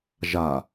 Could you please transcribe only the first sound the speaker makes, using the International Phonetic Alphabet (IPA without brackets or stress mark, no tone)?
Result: ʒ